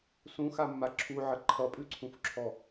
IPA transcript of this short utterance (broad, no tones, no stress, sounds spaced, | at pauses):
s ũ x a mː a ǁʰ u ʕ ə ǃʰ ʌ pʼ ʉ ǀʰ ũ f ǁʰ ɔ